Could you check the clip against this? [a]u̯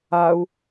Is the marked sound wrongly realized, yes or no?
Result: no